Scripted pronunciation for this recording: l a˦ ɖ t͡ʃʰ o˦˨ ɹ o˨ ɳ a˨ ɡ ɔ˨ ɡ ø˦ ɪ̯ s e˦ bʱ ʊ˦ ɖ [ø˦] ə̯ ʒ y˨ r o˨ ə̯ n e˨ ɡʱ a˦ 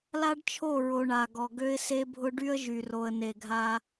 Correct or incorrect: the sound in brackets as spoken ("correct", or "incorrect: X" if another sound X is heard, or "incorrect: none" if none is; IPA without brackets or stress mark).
incorrect: y˦